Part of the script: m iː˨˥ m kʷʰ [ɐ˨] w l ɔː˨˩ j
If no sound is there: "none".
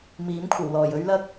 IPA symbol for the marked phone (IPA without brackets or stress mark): ɐ˨˩